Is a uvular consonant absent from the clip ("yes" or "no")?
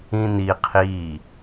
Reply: no